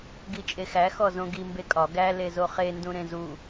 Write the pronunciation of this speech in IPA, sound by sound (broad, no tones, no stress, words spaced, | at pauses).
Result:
ɡit͡ʃʼexæ xɔzõɡi mbekʼɒ ɡæ lezoχe ndũɾẽzu